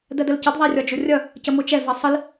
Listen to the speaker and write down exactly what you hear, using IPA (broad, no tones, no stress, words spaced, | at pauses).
dɜdəlcəd ðˤærʲɒd͡ʒʊrʲʌ | cəmʊt͡ʃɛ vɜsˤəl